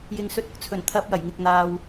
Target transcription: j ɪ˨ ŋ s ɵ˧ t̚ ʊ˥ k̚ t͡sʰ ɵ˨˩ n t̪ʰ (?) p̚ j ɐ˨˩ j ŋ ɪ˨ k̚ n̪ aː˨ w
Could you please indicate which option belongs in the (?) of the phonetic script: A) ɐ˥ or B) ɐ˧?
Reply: B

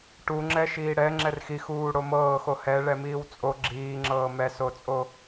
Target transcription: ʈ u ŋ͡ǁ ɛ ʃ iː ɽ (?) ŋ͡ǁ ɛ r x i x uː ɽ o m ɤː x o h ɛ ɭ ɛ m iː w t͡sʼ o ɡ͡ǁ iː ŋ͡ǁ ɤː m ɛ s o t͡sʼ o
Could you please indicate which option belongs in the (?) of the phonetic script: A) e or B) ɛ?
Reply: B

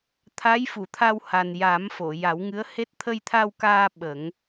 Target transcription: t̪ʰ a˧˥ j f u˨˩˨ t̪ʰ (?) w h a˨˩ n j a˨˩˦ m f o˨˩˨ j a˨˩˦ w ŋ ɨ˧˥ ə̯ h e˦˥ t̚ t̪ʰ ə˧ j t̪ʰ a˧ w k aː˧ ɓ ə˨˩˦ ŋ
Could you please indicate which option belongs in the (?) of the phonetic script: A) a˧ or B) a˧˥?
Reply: A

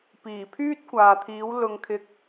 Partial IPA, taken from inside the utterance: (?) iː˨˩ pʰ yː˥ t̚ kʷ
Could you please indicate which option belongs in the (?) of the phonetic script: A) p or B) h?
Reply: A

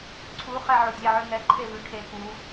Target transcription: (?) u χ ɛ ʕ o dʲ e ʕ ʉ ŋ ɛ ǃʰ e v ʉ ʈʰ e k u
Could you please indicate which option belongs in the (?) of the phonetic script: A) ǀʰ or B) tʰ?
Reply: A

